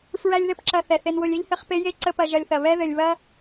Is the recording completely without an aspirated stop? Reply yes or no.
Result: yes